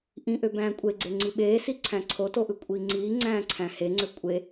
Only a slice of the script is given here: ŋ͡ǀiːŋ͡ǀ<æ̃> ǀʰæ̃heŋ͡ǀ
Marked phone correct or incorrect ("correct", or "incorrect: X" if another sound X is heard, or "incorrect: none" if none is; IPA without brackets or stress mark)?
incorrect: æ̃ː